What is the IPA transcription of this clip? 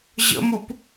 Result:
ʑə̰mup

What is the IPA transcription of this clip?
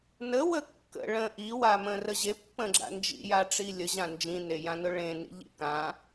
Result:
nəwə kːə̰ ɭə̃ ʔiwamə̃ rəʑe pːə̃ɡ͡ǁa̰nd͡ʒḭja ʈ͡ʂilʲəʑã nd͡ʒĩnejãnʊ ɭẽnḭ ʎḭkã

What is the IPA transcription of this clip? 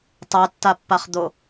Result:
tˤɜtːapːaχd̪o

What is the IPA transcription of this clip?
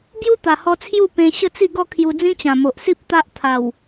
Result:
bju˦t̪a˨˩hɔ˧ t͡sʰju˥˧ pẽ˧ ɕə˥˧t͡si˥˧ ɡɔ˥˧kʰju˧d͡zĩ˦ t͡ɕã˨˩mo˨ʔsi˦p̚ t̪a˦ʔt̪ʰa˨˩w

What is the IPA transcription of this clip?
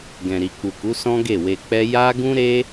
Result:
ɡɛ̃˨ɾi˨k͡pu˨ku˨˦ sɔ̃˦ɡe˦˨we˧k͡pɛ˦ ja˦ ɡũ˦ɾe˦

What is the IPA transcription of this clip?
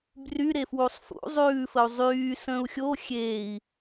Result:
bryɾe fwusˤfṵ zˤʉːfəu̯ zˤyː sə̃ːu̯xʲo xʲeːi̯

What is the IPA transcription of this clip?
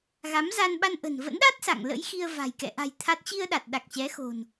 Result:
ɣa˨˦mza˧nɓa˧nʔə̤˨˩n və̰˧˥nɗa˦˥t̚ sa̰˧˨ŋlə̰˧˥j xi˧ə̯va̤˨˩j kɛ̰˧˨ʔa̤˨˩j t̪ʰa˦˥t̚ t͡ɕi˧ə̯ɗa˨˩t̚ ɗa˨˩k̚t͡ɕɛ˨˦xo̤˨˩n

